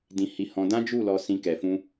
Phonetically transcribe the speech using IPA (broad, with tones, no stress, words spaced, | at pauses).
dĩ˧hi˧hɔ̃˧dã˦ d͡ʒu˦˨lɔ˧ sĩ˧ kɛ˨fũ˧